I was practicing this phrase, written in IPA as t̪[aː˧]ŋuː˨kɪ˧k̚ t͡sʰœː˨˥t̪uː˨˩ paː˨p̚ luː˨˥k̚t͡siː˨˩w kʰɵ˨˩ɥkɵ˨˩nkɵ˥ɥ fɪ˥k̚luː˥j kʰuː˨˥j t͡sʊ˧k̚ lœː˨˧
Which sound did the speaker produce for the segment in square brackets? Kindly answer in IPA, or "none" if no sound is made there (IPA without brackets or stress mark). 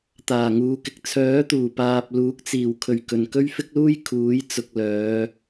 aː˨˩